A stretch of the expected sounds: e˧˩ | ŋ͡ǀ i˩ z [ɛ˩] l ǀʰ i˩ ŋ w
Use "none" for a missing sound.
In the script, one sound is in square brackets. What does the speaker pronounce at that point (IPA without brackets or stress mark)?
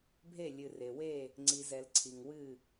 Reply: ɛ˩